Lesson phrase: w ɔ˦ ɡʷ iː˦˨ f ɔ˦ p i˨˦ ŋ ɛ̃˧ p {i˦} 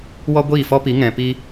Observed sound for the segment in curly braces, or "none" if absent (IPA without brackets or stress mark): i˦